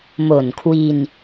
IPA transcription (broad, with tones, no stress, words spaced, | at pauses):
mo˨˩nkʰwi˧n